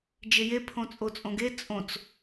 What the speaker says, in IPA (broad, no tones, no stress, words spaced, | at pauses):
d͡ʒeje pʰõt͡sʼot͡sʼõɡe t͡sʼõt͡s